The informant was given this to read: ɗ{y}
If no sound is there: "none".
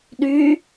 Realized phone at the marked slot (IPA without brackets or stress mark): y